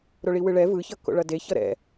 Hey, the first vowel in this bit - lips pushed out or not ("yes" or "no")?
yes